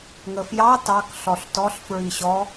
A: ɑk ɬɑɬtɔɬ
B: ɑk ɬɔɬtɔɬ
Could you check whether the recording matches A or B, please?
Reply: B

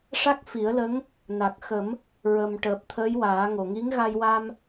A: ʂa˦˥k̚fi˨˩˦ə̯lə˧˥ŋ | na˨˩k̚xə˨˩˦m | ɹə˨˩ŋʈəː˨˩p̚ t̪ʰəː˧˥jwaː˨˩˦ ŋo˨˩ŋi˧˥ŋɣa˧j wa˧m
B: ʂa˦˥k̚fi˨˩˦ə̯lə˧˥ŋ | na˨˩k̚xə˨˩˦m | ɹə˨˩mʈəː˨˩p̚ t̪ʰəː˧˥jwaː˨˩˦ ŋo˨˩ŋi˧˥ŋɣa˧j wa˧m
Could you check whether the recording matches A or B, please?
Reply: B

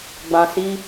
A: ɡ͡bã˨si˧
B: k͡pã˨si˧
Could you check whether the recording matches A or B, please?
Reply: A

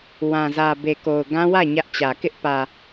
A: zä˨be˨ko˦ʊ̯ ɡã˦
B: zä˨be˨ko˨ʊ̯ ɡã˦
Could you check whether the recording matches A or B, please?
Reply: B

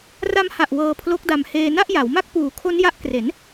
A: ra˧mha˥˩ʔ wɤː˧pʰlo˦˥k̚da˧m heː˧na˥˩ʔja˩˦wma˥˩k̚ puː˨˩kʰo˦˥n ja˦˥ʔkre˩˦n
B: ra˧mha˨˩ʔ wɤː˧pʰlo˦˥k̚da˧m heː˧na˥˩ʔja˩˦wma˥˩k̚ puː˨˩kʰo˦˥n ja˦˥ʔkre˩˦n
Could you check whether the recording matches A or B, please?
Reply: B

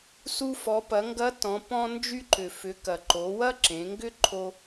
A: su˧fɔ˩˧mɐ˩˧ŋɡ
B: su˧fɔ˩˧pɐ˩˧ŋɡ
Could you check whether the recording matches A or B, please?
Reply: B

